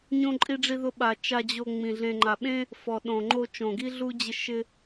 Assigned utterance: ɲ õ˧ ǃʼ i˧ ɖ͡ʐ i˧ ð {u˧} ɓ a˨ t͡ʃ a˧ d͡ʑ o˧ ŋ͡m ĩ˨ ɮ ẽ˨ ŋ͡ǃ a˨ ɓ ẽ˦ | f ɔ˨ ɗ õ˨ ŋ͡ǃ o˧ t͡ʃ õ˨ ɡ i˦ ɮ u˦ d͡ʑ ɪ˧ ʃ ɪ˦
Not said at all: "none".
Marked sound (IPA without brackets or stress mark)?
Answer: ʊ˧